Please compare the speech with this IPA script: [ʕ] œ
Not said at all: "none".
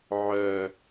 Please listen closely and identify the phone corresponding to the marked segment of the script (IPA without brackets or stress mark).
ʕ